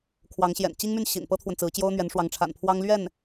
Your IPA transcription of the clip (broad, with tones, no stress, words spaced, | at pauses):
kʰwɑ˧˥ŋɕjɛ̰˨˩n t͡ɕi˥ŋmy˥˩nɕḭ˨˩n pɤ˥t̪ʰwə˨nt͡sɹ̩˧˥t͡ɕjo˥ʊ̯ n̪ɥɛ˧˥nʂwɑ˧˥ŋʈ͡ʂʰa̰˨˩npʰwɑ˥ŋ lɥɛ˥˩n